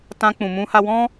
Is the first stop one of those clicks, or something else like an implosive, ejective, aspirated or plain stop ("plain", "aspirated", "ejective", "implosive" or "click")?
plain